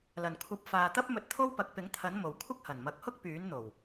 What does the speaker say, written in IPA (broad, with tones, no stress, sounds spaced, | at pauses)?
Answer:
l ɐ˨˩ n kʷʰ ɐ˨ p̚ f aː˨ t̪ ɐ˥ p̚ m ɵ˧ t̚ t̪ʰ o˥ w p ɐ˨˥ k̚ p ɪ˨˥ ŋ t̪ʰ ɐ˨˥ n m o˨˩ w kʷʰ ɐ˥ k̚ h ɐ˨˩ n m ɐ˨˥ k̚ h ʊ˥ k̚ p yː˨˥ n n̪ o˨˩ w